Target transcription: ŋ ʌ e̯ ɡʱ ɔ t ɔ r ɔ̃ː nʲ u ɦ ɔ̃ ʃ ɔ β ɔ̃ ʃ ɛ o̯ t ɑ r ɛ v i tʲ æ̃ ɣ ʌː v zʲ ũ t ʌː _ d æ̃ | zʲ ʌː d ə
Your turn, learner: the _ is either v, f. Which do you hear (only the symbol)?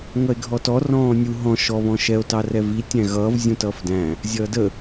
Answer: f